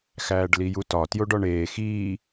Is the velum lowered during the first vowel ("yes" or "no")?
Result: no